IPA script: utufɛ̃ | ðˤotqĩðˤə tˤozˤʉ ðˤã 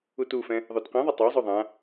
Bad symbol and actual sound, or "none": none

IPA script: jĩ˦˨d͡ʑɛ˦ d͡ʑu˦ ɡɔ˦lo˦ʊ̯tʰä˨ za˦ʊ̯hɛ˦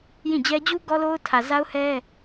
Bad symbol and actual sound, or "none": none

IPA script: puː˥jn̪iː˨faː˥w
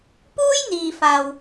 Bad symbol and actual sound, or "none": aː˥ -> aː˨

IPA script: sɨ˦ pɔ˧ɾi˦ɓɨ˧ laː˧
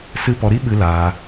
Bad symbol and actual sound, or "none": none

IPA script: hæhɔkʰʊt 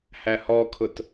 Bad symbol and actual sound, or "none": none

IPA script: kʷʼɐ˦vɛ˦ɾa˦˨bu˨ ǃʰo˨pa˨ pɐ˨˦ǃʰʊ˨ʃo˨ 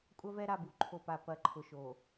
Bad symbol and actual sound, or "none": none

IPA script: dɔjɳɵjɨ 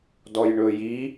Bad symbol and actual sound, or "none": ɨ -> i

